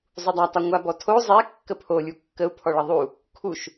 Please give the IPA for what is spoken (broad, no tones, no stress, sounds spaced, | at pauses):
zˤ u dˤ a tˤ a ŋʷ a b ɔ tʰ o zˤ ɛ kː ə pʰ o lʲ u kː ə u̯ pʰ ɔ ɭ ə ðˤ u | kʰ u ʃ